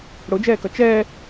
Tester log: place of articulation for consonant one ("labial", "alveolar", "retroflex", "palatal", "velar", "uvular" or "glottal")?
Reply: retroflex